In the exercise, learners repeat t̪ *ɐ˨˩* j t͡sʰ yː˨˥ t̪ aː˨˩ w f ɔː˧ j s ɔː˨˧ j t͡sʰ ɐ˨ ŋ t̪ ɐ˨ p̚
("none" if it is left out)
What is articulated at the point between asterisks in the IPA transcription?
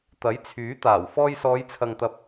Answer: ɐ˨˥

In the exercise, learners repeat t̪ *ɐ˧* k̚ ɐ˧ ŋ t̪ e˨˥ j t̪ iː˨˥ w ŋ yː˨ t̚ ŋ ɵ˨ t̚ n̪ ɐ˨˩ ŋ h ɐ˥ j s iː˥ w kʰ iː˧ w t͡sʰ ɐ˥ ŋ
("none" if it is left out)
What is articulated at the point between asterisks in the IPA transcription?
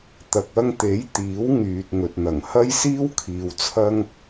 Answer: ɐ˨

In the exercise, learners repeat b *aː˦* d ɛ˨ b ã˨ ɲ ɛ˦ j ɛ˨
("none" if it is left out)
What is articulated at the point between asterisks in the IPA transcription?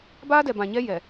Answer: aː˦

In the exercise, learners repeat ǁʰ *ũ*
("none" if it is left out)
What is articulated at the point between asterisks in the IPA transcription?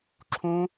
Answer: ũ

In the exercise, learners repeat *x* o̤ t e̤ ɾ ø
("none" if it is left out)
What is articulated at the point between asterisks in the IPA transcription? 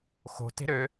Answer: x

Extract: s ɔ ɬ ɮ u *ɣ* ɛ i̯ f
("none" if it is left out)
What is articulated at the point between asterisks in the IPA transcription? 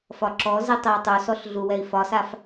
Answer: w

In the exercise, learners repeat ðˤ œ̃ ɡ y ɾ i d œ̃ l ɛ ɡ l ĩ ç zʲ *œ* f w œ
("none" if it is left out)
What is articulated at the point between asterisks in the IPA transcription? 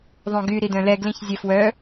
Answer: ɛ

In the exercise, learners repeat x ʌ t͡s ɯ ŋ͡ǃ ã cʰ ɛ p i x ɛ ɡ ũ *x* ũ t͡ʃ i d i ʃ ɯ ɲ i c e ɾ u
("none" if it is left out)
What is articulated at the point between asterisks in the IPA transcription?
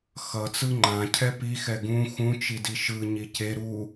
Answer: x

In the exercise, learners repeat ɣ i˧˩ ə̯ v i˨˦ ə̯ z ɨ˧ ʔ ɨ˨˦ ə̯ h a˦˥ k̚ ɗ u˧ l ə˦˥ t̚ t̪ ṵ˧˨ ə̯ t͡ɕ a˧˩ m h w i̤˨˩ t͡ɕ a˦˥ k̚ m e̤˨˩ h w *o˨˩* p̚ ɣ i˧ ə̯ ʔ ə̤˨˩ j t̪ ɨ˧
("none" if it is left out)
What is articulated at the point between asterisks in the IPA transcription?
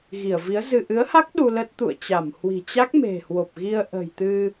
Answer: o˨˩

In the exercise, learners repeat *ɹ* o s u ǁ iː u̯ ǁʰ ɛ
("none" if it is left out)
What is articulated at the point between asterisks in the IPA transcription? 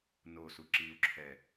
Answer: n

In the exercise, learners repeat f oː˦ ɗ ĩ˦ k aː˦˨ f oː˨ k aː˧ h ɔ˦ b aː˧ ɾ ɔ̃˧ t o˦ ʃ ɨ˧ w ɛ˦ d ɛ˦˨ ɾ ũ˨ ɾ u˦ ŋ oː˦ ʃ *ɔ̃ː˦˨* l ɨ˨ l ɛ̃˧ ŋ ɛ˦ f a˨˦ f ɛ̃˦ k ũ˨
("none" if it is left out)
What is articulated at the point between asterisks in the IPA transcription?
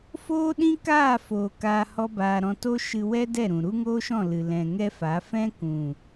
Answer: ɔ̃˦˨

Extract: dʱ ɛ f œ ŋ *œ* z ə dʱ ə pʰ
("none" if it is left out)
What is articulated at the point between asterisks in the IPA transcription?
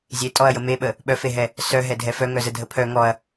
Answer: œ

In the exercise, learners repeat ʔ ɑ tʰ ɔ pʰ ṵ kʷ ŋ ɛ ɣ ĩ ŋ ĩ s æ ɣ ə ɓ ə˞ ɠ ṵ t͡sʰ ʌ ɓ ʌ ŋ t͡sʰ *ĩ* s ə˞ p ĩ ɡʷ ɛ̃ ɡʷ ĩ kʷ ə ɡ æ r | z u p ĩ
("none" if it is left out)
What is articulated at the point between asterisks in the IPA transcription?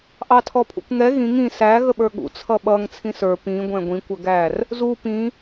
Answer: ĩ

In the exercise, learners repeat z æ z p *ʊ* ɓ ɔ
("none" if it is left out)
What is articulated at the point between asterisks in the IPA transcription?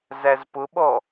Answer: ʊ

